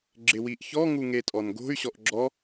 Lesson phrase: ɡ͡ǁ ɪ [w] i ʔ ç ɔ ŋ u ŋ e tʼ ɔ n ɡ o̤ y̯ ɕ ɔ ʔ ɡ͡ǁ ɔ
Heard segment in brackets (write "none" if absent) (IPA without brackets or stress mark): w